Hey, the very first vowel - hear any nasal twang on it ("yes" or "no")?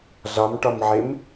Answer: no